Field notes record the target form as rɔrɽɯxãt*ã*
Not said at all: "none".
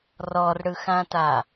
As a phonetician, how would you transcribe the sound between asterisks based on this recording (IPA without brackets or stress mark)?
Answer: a